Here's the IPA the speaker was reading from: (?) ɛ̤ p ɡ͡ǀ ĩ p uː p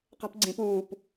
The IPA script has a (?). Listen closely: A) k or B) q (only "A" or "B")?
B